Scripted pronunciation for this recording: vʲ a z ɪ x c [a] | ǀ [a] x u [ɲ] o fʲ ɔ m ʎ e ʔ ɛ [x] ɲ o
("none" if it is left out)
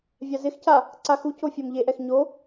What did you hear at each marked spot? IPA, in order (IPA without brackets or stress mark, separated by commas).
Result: a, a, c, x